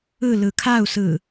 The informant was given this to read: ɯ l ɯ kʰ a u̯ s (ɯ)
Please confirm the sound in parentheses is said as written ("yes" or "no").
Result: yes